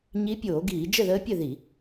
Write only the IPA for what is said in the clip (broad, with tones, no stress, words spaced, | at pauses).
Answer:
ɲi˧˥pʲoː˧˩˧ɡiː˧˩˧ d͡ʒə˥˨ðəː˧˥pʲə˥˨ ði˧˩˧